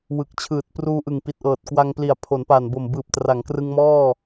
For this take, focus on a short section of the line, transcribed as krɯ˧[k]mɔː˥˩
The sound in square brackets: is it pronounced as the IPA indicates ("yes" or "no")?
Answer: no